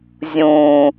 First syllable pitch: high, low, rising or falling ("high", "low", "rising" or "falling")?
low